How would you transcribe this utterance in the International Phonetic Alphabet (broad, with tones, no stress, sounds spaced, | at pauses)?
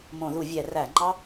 m õ˧˩˧ ð u˧˩˧ vʲ ɛ˧˩˧ r æ˧˩˧ ŋ͡ǃ ɑ˦˥